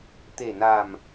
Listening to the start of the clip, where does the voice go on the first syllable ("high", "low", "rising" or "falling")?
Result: low